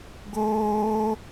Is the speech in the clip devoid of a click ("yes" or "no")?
yes